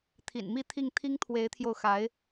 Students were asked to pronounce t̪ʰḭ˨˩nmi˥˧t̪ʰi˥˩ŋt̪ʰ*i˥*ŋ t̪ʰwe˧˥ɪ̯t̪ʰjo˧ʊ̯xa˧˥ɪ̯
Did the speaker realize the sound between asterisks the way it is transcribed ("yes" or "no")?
yes